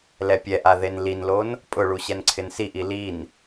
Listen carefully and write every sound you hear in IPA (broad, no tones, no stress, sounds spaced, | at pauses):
l ɛ pʲ ɛ ʔ a ð e n l i n l o n | pʼ ʊ ɭ u ɕ ɛ n ǀʰ ɪ n s i ʔ i l i n